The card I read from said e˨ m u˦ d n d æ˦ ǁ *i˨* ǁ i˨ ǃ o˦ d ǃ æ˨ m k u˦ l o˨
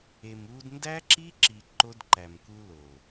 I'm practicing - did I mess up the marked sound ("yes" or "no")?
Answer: yes